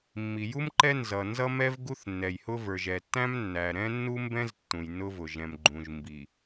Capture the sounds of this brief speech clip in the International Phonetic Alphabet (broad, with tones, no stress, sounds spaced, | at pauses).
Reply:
mː i˨ j u˦ m ǃ ɛ˦ n z ʌ˨ n z ʌ˦ m ɛ˦ v ɡ u˦ θ nː ɛ˨ j h ʊ˦ v ə˞˨ ʒ ɛ˨ tː æ̃˦ m nː æ˨ ɾ ɛ̃˦ nː u˦ m b ɛ̃˦ z tː ũ˨ j nː ʊ˦ v ʊ˨ ʒ ɛ̃˨ m ɡ͡ǃ ũ˨ ʒ m b i˨